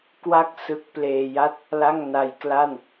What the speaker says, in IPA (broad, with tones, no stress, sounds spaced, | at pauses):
k w a˥˩ k̚ s ɯ˦˥ k̚ p l eː˧ j a˥˩ t̚ | l a˥˩ ŋ n a˧ j k l a˥˩ n